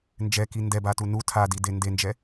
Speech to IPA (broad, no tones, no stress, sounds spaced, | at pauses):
n d͡ʒ ɛ k i n d ɛ b a t u n u tʰ a d i d e n d e n d͡ʒ ɛ